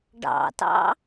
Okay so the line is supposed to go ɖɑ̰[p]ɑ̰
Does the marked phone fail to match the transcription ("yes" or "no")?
yes